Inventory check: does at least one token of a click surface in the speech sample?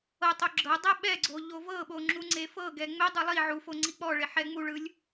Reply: yes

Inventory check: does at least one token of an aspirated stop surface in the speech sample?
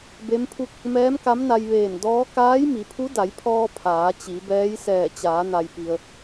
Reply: yes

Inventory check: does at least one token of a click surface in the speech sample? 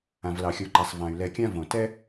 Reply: yes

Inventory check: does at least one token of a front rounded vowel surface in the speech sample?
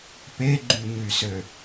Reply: yes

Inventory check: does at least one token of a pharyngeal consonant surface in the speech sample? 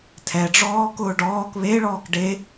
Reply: no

